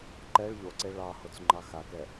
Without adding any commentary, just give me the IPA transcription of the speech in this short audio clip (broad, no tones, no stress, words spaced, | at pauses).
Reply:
ǃɛɭ ʎoǀe ɭɑhot͡s ŋ͡ǃɑxakɛ